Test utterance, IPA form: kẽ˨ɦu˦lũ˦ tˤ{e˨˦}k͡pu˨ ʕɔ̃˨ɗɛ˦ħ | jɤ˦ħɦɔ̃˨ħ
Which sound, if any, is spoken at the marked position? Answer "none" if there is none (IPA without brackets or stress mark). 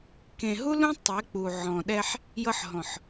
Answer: e˨˦